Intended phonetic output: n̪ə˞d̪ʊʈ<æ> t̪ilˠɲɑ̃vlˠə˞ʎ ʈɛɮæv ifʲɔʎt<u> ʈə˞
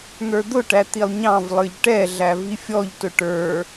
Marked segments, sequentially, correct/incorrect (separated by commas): correct, incorrect